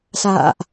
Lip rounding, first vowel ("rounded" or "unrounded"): unrounded